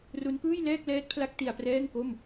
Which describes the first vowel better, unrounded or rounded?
rounded